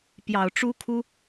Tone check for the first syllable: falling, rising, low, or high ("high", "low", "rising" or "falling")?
low